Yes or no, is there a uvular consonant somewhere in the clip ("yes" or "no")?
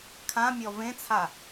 no